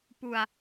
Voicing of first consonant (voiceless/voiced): voiceless